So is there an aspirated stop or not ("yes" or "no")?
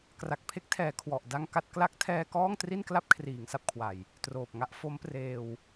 yes